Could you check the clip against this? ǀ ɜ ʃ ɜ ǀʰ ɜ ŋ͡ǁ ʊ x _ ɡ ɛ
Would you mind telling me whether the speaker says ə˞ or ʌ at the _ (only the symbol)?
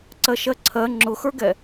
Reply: ə˞